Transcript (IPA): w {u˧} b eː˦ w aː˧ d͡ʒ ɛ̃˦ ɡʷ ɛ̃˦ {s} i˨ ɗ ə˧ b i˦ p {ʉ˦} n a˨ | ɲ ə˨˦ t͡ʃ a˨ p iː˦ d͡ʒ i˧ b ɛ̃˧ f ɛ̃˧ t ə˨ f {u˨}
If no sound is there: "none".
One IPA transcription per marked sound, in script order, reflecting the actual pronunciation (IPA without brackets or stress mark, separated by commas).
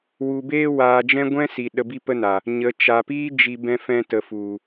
u˧, s, ə˦, u˨